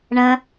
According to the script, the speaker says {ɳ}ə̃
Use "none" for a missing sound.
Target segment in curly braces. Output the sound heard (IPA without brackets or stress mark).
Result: ɳ